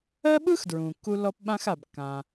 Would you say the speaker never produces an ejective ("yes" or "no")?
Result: yes